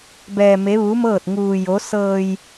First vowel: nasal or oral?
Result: oral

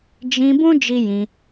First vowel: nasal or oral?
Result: nasal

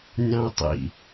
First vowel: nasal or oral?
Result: nasal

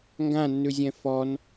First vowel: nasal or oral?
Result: nasal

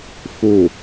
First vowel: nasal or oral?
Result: oral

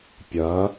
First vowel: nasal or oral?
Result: oral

